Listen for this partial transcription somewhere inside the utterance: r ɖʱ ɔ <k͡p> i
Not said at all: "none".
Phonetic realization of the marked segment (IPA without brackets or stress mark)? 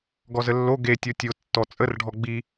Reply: ɡ͡b